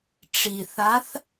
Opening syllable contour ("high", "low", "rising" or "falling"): low